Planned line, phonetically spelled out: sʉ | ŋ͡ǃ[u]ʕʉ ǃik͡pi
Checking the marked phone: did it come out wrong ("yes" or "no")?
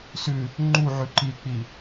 no